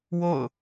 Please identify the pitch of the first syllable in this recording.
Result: falling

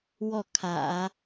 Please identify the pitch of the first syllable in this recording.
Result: falling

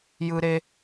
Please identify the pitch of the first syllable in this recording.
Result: high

